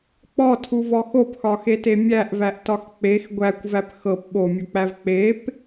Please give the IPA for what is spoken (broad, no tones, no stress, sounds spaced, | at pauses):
k͡p ɔ tʰ u v ɔ x o p x ɒ x e t e mʲ æ ʔ v æ ʔ t ɒ x k͡p e x ɡʷ æ kʷ v æ p x ɤ p ɓ o mʲ u k͡p æ v k͡p e p